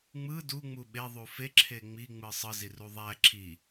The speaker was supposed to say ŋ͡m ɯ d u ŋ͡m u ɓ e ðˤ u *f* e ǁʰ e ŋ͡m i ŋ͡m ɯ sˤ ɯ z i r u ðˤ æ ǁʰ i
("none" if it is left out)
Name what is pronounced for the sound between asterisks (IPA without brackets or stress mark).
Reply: f